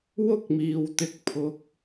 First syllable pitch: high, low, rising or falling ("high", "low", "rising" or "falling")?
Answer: high